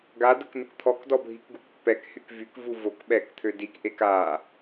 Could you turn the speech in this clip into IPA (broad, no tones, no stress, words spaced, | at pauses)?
ɡadək nəkt̪ʰɔkdɔ bʱikɡukpːɛkhyk vykvu vok ɓɛkt̪ʰø dikʔek a